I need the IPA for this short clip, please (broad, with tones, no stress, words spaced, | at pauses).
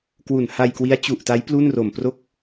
kwu˨˩n ha˧jkwi˦˥a̯ t͡ɕu˨˩ʔta˦˥j plu˥˩n ro˨˩mpro˥˩k̚